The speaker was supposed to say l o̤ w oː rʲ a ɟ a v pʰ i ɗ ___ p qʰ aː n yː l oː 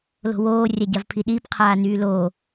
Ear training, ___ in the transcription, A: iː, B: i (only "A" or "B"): A